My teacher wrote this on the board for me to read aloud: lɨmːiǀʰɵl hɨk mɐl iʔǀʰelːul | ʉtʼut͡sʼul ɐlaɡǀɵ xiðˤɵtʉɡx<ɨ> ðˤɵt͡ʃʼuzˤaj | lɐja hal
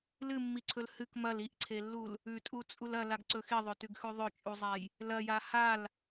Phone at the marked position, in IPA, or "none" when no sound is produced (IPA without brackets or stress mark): ʉ